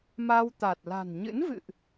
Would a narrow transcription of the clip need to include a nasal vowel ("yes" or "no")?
no